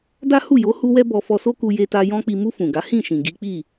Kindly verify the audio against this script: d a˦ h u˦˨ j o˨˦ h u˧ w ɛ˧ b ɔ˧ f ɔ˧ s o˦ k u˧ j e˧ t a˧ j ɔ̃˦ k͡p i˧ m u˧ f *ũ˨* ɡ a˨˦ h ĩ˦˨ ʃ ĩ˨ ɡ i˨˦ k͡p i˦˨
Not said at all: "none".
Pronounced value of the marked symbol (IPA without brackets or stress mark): ũ˨